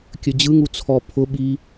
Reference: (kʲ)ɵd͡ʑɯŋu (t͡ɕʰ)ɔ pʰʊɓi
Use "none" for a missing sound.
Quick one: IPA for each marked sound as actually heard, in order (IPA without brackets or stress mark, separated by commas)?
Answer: kʲ, t͡sʰ